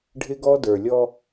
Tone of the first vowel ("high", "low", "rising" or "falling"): high